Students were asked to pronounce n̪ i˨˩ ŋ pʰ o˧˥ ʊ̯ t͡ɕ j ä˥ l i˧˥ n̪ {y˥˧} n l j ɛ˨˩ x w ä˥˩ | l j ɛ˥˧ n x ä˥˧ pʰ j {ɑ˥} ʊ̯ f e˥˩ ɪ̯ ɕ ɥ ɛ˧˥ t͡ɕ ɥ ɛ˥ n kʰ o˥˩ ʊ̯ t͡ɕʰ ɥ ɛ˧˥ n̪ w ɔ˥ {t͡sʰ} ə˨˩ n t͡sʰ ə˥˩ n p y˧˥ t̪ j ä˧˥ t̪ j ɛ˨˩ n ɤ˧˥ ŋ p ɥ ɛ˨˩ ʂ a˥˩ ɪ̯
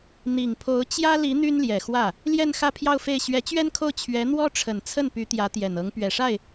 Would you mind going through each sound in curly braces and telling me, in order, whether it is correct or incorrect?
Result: incorrect: y˥, incorrect: ɑ˥˧, incorrect: ʈ͡ʂʰ

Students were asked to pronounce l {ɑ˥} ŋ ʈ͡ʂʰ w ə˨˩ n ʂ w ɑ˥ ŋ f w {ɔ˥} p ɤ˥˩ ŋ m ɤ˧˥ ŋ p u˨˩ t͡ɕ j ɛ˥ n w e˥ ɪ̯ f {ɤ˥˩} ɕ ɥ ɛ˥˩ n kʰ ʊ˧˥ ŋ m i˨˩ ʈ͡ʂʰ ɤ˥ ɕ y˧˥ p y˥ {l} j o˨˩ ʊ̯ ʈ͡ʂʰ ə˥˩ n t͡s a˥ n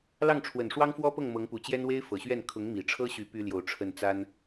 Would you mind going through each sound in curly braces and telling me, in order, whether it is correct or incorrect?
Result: incorrect: ɑ˥˩, correct, incorrect: ɤ˨˩, correct

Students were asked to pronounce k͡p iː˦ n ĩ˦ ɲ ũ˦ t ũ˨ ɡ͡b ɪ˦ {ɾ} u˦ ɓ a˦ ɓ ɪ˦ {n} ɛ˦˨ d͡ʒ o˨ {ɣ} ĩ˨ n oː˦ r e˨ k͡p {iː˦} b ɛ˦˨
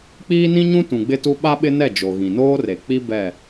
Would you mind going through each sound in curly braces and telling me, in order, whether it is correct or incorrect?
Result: incorrect: t, correct, correct, incorrect: i˦

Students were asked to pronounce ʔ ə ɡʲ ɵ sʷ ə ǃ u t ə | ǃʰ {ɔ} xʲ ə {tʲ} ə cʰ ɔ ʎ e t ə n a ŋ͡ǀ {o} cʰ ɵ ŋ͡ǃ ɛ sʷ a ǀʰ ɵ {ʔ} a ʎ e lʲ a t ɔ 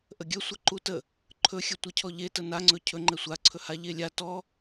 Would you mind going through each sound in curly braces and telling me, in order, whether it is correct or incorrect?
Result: incorrect: ɵ, incorrect: tʷ, incorrect: ɵ, incorrect: h

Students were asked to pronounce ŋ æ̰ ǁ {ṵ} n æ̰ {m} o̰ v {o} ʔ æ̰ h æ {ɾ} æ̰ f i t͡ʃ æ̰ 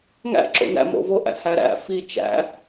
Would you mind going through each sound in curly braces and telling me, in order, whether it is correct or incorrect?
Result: incorrect: o̰, correct, correct, correct

